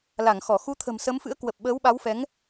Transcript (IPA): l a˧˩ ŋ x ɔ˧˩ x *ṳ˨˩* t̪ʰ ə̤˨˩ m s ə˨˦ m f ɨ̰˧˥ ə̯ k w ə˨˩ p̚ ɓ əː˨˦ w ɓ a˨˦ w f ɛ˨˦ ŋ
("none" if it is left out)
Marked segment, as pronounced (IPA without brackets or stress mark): u˨˦